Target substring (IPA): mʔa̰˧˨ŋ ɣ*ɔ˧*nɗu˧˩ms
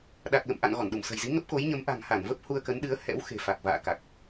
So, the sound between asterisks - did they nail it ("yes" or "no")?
no